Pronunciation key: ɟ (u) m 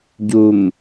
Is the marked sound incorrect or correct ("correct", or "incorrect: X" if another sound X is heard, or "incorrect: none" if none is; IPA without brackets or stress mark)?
correct